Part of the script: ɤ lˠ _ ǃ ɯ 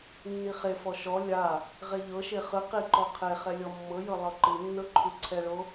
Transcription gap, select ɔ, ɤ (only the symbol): ɤ